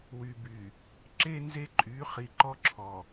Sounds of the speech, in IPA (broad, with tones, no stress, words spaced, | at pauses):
wy˨by˨ | ǁe˦ nze˦ǃʼy˨˦ χi˨ǃɔ˦ ǁʰɔ˨